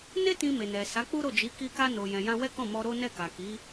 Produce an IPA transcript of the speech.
ne˦ tĩ˧me˨nɛ˨sa˨˦ k͡pu˦ɾo˦˨d͡ʒi˨˦ ki˧ka˧ no˨jɛ̃˨jã˧ wɛ˦kɔ̃˦˨mɔ˧ ɾo˦nɛ˦˨ka˨ ki˨˦

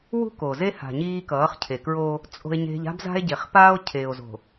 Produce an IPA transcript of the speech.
wṳ˦ko˨ze˦ ha̤˨ ɲiː˦kʌː˨˦χcʰe˨kɹoː˦ | t͡sʼo̤˦e̯ɲe̤˦ʎ a̤˦bza̤˦e̯ɟe˨χ paː˦o̯cʰeː˨o̯zo̤˨

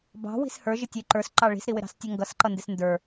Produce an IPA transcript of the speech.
bɑ̤wi̤s hə˞ʒɪ tʲə˞ǃə˞sǃɑ ɭi̤sɾiwɪɾɑ̤s tʲʌŋɡʌsǃʌ ndɪsndə˞

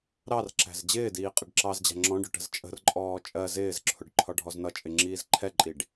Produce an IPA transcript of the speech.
ɾɑrǁæ̤z d͡ʑɪːdiː qʼɪɖǁɑzd͡ʑæ̤ ŋ͡ǁɔ̃ɖʊ ʈə̤zt͡ʃʼə̤rǃʼɔː t͡ʃʼɜ zɪːzǁʰʊɖ ǃʰɒɖʱɔznʌt͡ʃʼɪ ŋ͡ǁiːzǃʰɛǃʼiɖ

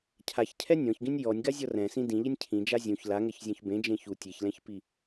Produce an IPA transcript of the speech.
cʰaçcʰɛ nʲɔ̃çɡĩnʲ jɔnʲɡazʲɔ rɛ̃sĩ dĩʎenʲ cʰĩd͡ʒa zʲũç laŋɛçzʲɔ̃ç bẽd͡ʒẽ çu tʲeçlɛ̃çpi

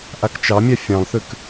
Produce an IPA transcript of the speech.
ʔakt͡ʃɑmʲa fʲɑ̃lˠθʉk

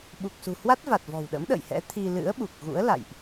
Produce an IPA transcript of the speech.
ɓu˨˩k̚sṳ˨˩hwa˦˥t̚va˨˩t̚ vɔ̤˨˩wɗə̰˧˥m ɗə̰ː˧˨jhɛ̰˧˥ t̪ʰi˧ lɨ̰˧˥ə̯ɓu˨˩k̚ ɣṵ˧˥ə̯la̰˧˨jʔ

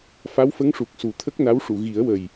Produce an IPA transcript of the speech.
fa˧˥wfə˧˥ŋʂu˨˩k̚ su˨˩t̪ʰə˦˥k̚na˧˥wʂu˨˩˨ ɣi˨˩˦ə̯wə˨˩j

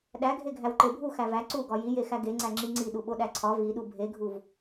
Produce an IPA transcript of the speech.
ɗæɡʱe ɡʱæwǃebʱu xævæ ǀuɡɒ jijexæ ɡeŋ͡ǀæ ŋ͡ǁiŋ͡ǀiɗu ɓoɗæǀʰɒ viɗu bʱeɡʱuv

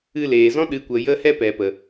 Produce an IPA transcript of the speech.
ɨ˧leː˨zɔ̃˦ ɗɨ˨˦kʷə˨ jə˦ hɛ˦pɛ˨pə˨

